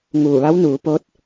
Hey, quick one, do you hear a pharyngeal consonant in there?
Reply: no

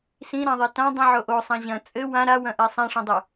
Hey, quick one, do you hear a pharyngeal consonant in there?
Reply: yes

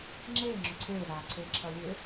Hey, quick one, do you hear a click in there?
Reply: yes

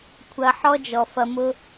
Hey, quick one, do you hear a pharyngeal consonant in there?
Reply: yes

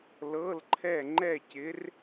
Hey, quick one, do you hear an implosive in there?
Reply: no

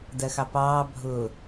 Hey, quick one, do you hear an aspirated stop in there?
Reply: no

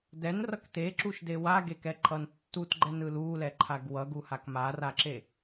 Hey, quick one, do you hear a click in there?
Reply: yes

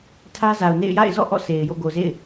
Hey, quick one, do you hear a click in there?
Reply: no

